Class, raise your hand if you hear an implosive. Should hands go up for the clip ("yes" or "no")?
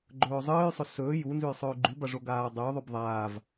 no